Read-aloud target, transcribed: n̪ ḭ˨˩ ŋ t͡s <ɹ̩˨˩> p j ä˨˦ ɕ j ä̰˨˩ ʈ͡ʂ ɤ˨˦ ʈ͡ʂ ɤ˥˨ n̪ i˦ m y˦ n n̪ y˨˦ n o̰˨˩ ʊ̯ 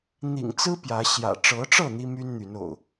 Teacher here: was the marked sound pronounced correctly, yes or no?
no